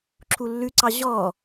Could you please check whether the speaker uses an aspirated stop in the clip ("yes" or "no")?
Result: yes